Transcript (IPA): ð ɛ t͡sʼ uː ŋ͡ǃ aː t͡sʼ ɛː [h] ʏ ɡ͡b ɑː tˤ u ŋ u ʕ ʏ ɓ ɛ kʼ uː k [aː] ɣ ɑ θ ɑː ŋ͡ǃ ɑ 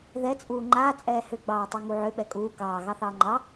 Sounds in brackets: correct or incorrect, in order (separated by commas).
correct, incorrect